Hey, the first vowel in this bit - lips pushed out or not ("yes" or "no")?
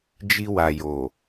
no